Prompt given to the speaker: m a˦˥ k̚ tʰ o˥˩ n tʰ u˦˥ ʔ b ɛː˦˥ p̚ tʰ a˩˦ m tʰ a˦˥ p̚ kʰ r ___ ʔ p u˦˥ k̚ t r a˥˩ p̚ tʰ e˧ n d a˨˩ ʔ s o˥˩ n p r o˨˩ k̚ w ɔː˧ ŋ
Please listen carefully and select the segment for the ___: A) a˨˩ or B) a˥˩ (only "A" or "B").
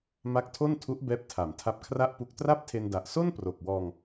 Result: B